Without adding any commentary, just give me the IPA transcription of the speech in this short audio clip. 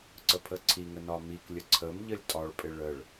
ǀ ə pʰ ə ǀʰ i ŋ ə n ɒ m i k lʲ ə ǀʰ ə m ʎ ə lʲ tʼ ɒ ɭ pʼ ɪ ɭ ə ɭ

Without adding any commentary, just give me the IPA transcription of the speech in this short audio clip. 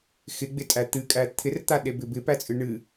x ɪ ɡ͡b ɪ tʼ æ t̪ ɨ kʼ æ t̪ʰ ɪ r t̪ a ɗ e b ɪ b ɪ p æ t͡sʼ ɨ ɳ ɨ

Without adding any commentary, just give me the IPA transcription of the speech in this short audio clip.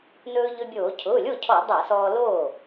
n ɵː˧ ʎ ɵ˧ bʲ oː˧˩˧ cʰ ʊː˩˧˩ lʲ o˥˩ cʰ ɔ˧˩˧ dˤ a˧˩˧ s ɔː˧ l oː˥˩

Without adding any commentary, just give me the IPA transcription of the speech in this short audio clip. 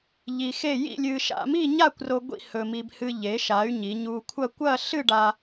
ʎ i˧ x e˥˧ j ḭ˥˧ lʲ ɨ˧ ʃ a̰˧ m i˥˧ ɲ a˥˧ kʷ r o˧ ɡʷ ḭ˥˧ h ɵ˧ m i˧ b h ɨ˧ ʎ e˩˧ ʃ a˩˧ y̯ ɲ i˩˧ ɲ u˧ kʷʰ ɐ˥˧ kʷ ɐ˥˧ ɬ ɨ˥˧ ɖ a˧

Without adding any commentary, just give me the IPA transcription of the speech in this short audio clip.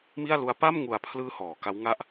m i˥˩ a̯ l u˦˥ a̯ p a˥˩ m ŋ u˨˩ a̯ pʰ l ɯː˧ h ɔː˩˦ k a˦˥ w ŋ a˥˩ ʔ

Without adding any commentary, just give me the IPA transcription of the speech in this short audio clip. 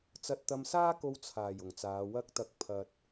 t͡s ɐ˧ t̚ t̪ ɐ˧ m s aː˥ k o˧ w t͡sʰ aː˨˩ j ʊ˨˩ ŋ t͡s aː˨˧ w ɐ˧ k̚ t̪ ɐ˨˥ k̚ pʰ ɐ˨ t̚

